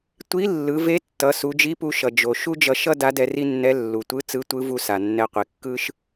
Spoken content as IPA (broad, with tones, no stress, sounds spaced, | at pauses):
tʷ i˧˥ lː ɯ˩˧ v e˧˥ tː ʌ˩˧ s u˩˧ d͡ʒ i˧˥ p u˧ ʃ ʌ˩ d͡ʒ o˩ ʃ u˥ d͡ʒ ʌ˧ ʃ ʌ˥ d a˧˥ d ɛ˧ r i˥ nː ɛ˧˥ lː u˩ tʷ ɯ˧˥ t͡s ɯ˧˥ tʷ ɯ˧˥ v u˧ s a˩ nː ɛ˧ qʷ i˩ kː ɯ˥ ʃ